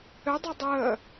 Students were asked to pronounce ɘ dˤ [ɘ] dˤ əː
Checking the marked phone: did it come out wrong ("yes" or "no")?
yes